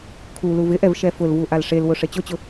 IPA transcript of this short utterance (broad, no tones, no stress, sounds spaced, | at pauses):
kʰ u l u v ɪ ʔ ɛ v ʃ ɛ f ʊ l v u ʔ a l ʂ e l w ʊ ʂ e t͡ɕ ʊ t͡ɕ ʊ